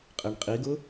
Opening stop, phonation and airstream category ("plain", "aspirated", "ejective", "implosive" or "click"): ejective